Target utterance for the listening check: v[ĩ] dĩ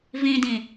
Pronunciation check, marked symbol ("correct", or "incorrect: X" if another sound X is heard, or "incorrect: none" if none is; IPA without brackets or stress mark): correct